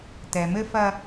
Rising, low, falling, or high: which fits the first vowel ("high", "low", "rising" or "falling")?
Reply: low